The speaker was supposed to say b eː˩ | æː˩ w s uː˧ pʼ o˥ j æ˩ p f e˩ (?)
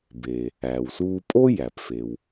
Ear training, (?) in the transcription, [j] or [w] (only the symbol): w